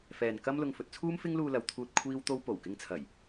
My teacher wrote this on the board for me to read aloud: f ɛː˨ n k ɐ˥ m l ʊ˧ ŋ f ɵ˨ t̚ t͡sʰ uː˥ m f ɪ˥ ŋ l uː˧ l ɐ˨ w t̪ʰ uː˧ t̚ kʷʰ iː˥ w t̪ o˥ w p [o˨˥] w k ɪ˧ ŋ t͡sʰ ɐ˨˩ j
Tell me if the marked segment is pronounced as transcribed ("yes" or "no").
no